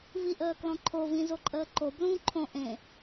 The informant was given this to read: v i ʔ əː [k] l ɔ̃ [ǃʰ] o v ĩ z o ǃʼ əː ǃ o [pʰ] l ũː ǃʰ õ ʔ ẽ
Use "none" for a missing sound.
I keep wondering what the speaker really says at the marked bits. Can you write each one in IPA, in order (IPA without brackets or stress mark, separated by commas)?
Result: k, ǃʰ, b